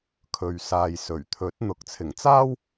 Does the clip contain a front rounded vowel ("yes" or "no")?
no